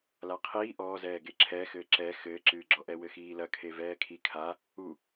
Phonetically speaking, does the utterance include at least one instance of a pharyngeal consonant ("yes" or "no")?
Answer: no